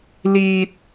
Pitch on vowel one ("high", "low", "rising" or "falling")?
high